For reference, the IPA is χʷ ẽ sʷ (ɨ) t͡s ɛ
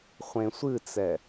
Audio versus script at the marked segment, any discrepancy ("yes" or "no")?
no